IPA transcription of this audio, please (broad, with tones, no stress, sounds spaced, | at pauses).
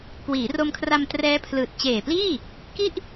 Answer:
k w iː˩˦ r o˧ m kʰ r a˧ m t r ɛː˦˥ pʰ l ɯː˨˩ t̚ t͡ɕ eː˨˩ p l iː˥˩ | k i˥˩ ʔ